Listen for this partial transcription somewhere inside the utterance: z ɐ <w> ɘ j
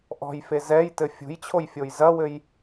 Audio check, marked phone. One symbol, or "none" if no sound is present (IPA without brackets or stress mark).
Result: w